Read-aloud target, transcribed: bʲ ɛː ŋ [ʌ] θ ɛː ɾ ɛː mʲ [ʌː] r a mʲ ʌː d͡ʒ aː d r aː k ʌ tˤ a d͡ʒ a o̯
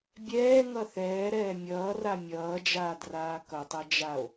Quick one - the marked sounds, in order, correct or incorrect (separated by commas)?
correct, correct